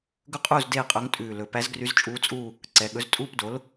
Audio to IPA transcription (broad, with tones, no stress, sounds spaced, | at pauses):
ɡ ɵ˥ qʼ uː˥˧ z d eː˥˧ qʼ ɵ˧˥ ŋ tʼ ʉː˨˩ l ɵ˩˧ p æ˧˥ z ɡ r y˧˥ z t͡ʃʼ uː˧˥ t͡sʼ uː˥˧ | ǀ ɛ˩˧ ɠ ɵ˩˥ z tʼ uː˥˧ p d o˩˥ l